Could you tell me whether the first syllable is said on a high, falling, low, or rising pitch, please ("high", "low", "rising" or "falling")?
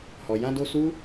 low